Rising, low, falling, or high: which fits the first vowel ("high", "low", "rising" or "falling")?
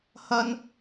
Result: high